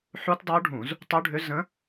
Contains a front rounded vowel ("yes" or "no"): yes